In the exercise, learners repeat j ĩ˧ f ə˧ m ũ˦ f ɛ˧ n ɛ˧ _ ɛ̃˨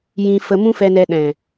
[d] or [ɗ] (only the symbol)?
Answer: ɗ